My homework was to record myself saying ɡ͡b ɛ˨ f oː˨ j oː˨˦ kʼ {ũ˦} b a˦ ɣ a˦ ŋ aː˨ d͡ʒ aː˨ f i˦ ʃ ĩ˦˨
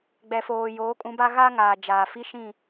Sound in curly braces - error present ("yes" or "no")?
yes